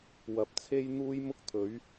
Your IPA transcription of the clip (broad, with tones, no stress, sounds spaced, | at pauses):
w ɐ˨ p̚ t͡sʰ e˥ j n̪ uː˥ j m ʊ˥ k̚ t̪ʰ ɵ˨˥ ɥ